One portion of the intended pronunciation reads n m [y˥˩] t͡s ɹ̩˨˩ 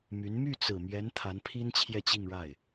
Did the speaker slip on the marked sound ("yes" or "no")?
no